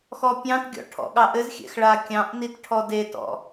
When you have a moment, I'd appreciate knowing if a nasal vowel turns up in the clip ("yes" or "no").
yes